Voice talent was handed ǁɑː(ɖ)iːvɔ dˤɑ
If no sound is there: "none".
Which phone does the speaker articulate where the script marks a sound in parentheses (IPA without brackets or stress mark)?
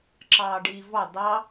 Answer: ɖ